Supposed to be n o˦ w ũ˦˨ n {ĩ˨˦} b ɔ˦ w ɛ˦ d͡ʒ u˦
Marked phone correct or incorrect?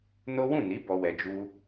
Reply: incorrect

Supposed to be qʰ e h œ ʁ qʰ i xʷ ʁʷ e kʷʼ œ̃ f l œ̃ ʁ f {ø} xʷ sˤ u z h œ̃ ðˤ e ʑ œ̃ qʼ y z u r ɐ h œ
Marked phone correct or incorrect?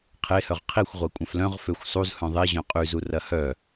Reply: correct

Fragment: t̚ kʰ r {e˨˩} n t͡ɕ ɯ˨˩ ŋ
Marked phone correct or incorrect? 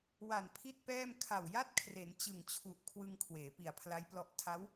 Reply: incorrect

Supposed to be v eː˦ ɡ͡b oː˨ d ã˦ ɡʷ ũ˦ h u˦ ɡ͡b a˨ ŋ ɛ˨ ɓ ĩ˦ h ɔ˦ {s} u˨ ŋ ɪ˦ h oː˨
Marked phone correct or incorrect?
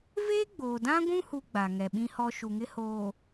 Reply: incorrect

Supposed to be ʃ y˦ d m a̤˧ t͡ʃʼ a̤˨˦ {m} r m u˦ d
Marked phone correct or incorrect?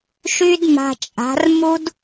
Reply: incorrect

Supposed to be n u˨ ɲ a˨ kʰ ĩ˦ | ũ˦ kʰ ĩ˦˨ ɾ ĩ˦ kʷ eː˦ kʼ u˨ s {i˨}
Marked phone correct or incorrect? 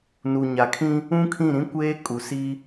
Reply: incorrect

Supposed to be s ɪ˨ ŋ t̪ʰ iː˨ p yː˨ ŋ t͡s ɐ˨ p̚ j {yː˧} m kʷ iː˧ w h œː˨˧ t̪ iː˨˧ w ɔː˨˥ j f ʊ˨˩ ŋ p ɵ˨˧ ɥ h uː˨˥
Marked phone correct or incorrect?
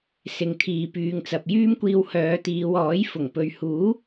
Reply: incorrect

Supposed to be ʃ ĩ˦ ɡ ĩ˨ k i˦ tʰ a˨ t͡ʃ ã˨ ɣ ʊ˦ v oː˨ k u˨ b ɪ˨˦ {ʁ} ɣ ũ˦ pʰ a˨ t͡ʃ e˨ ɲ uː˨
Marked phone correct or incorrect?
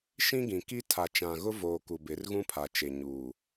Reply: incorrect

